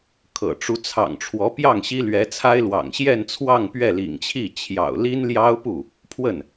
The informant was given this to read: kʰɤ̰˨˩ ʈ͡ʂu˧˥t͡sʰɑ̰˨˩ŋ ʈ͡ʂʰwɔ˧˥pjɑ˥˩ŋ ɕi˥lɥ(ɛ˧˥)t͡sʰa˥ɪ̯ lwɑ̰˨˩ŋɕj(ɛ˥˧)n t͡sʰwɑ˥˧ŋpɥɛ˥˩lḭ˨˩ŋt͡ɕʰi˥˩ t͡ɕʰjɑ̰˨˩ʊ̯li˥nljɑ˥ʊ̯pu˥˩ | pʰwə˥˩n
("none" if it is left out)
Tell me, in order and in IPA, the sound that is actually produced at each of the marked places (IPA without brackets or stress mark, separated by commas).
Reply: ɛ˧˥, ɛ˥˧